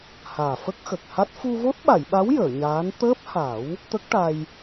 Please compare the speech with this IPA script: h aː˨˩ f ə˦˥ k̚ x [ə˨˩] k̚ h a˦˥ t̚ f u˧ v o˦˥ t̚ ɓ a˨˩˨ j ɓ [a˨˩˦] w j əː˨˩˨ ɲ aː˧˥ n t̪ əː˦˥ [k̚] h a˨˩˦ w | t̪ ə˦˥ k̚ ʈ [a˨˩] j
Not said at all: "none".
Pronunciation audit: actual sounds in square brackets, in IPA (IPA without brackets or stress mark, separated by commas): ə˨˩, a˧˥, p̚, a˧